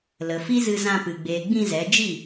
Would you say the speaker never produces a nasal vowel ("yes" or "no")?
no